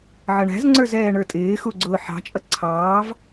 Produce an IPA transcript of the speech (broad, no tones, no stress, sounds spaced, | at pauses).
ʕ ʌ ɳ æ̤ z ŋ͡ǀ ə˞ z ɛː ɳ ə˞ tʼ ɪː x u ɡ͡ǀ ʊː ħ ɑ̤ t͡ʃʼ ʌ ǀʰ ɑː v